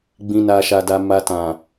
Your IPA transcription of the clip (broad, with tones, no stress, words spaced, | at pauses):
ɡ͡bĩ˨na˨ʃa˨da˨ ma˨tã˨